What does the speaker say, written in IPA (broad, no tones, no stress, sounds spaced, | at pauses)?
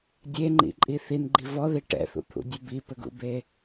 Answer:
dʲ e ŋ͡ǃ ḭ ǃʼ i θ i n ɡ͡ǃ i v ɔ ð i ʈ ɛ̰ θ ṵ t̪ʰ ṵ dʲ ɯ b i p ɘ ɡ ṵ b e